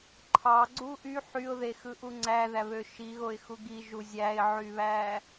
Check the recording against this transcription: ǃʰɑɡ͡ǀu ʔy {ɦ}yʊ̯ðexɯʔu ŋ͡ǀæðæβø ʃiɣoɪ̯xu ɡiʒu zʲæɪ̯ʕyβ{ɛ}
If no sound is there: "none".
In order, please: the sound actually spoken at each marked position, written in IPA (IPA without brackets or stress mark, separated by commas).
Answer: ħ, æ